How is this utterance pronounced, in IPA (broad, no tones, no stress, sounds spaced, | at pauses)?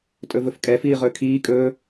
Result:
tʼ ɵ v ɵ f kʼ ɛ f iː ʁ ɵː kʰ iː kʼ ɵː